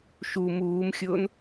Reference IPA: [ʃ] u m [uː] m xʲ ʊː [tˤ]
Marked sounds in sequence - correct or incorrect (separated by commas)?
correct, correct, incorrect